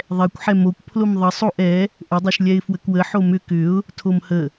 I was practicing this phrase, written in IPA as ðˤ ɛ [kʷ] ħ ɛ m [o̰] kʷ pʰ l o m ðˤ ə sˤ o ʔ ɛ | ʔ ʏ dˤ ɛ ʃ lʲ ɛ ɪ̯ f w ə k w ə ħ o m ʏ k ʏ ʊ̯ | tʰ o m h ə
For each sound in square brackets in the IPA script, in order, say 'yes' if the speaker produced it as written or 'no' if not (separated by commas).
yes, no